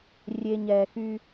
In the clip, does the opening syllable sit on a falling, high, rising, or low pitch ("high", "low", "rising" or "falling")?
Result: low